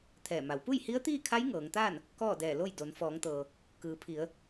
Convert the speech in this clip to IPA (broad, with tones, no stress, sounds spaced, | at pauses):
t̪ʰ ɛː˧˩ m a˩˧ w p u˥˨ j h i˧˥ ə̯ t̪ iː˥˨ kʰ a˧˥ j ŋ ɤː˩˧ ŋ t̪ aː˥˨ n | k ɔː˥˨ d ɛː˧˩ l o˥˨ j d o˩˧ n f ɔː˩˧ ŋ t̪ ɤː˩ | k ɯː˩˧ pʰ i˩˧ ə̯